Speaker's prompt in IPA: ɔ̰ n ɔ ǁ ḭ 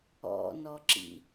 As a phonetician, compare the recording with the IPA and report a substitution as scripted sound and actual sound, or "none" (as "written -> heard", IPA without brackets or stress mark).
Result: none